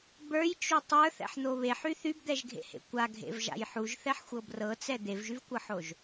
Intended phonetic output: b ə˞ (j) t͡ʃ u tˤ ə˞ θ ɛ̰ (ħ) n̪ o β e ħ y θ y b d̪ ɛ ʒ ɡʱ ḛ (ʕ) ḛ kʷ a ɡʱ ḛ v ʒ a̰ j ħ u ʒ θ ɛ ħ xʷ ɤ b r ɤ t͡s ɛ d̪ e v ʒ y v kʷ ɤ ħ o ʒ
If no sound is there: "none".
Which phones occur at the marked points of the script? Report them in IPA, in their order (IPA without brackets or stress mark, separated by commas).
j, ħ, h